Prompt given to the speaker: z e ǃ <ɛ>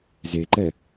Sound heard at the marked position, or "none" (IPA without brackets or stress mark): ɛ